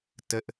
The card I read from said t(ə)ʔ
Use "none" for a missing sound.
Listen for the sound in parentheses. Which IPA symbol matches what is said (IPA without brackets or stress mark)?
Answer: ə